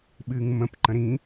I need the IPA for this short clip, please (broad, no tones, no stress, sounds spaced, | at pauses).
ɓ ɨː ŋ m ə̃ p ǃ ə̃ ɾ ĩ